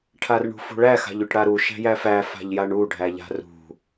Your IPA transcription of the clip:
ʈʰ a r ɳ ṳ f ṳ ɭ æ x a̤ ʎ y ʈ ɽ a ɾ u ʃ æ̤ j æ f æ f a̤ ʎ j a ɳ u ɖʱ æ ʎ a̤ r ṳ

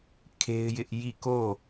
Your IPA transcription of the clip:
kʰ e˦ ɪ̯ j ɪ˦ ʔ j i˦˨ k o˦˨

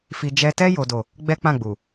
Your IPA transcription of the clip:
f i˧ d͡ʒ ɛ˧ t ɛ˦ j o˦ d o˦˨ | ɡ͡b ɛ˦ k͡p ã˦˨ ɡ͡b u˨

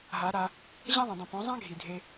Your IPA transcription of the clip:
ɦ a˨˦ ɾ a˧ | ʑ ã˦ ðˤ ã˨ dˤ ĩ˨ p õ˨˦ zˤ ã˦ ɡʱ i˨ dʱ e˧

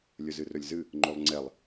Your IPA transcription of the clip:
lʲ ɵ z ɨ r ɵ lʲ z ɨ | ŋ͡ǃ o lˠ ŋ͡ǀ ɛ lˠ

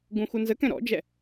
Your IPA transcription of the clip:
ɡ ũ x u n z ə k ɛ̃ ɾ ɔ̰ d͡ʒ ɛ

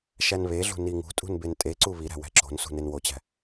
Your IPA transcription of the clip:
ʃ æ n β e ɮ ṳ n i ŋ ṳ tʼ ṳ n b e n tʼ e ǀ u β i ɾ æ̤ w æ̤ ǁ o̤ n s ṳ n e n w o t͡ɕ æ̤

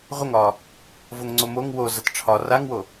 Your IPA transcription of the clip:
ʁʷ ə ŋ ɒː | v o ŋ ŋ͡ǀ o m o ŋ w o z ɐ t ʈ͡ʂʰ ɒ r a ŋ w o

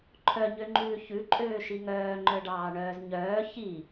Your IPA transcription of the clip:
ǃʰ œ ɲ ø ŋ͡ǃ ʉː ç ʉ ǃʼ øː ʃ i ŋ œː ŋ͡ǃ œ ɖ ɑː ɳ œː z ɲ œː ç i

